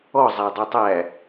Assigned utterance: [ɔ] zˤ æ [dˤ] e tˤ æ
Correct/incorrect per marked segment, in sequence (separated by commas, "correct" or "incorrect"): correct, correct